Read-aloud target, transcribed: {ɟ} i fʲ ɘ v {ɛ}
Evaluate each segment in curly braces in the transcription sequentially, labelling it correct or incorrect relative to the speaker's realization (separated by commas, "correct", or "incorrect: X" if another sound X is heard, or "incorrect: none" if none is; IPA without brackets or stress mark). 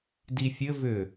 incorrect: d, incorrect: ʏ